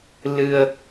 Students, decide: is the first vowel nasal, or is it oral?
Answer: oral